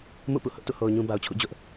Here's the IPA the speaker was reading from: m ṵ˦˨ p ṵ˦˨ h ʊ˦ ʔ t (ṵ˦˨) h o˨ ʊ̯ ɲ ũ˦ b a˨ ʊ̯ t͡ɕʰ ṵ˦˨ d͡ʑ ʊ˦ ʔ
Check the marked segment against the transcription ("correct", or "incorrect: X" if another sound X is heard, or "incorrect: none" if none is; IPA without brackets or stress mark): correct